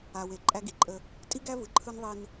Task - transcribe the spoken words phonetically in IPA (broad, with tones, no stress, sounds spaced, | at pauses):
a˨ w e˨ ǃʼ æ˦ ɡ i˨ ǃʼ ə˦ | tʼ i˦ ɡ æ˦ v ɯ˨ ǃʰ ɯ˦ n ðˤ i˦ n